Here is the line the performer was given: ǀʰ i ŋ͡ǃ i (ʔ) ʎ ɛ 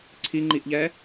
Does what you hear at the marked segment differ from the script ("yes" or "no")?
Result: no